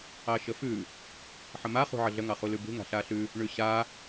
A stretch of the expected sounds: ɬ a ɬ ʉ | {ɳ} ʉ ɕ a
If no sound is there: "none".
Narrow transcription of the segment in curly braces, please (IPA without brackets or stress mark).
ɳ